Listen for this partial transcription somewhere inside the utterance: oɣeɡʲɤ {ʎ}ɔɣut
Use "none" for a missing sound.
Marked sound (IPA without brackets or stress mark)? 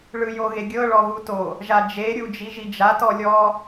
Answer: ɭ